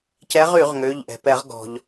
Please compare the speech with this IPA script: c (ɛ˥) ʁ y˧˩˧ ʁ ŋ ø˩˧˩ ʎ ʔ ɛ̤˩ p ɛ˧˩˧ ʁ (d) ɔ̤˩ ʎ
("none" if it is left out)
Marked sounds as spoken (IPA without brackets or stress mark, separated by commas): ɛ˨˦, ɡ